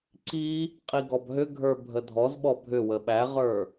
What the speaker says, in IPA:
ǀ i | qʼ i ɡ ɔ b ɦ ʏ ɡʱ ə˞ bʱ ə dʱ ɔ z ɓ ɔ bʱ ʏ w ə ɓ æ ʁ ə˞

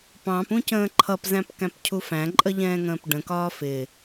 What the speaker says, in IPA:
p ɑ̃ p ũ c ə̃ː ǃʰ ʌ p z æ̃ p k æ̃ p cʰ u f æ̃ ǃʼ ə ʎ ɛ̃ː ŋ ə̃ː p ɖ ə̃ k ɒː f ɪ

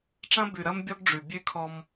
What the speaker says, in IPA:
ʈ͡ʂ ɐ̃˦ b ʉ˨ ɾ ɐ˦ m bʲ ɔ˦ ɡ ɖ͡ʐ ʉ˨ bʲ ʉ˦ kʰ ɔ˦ m

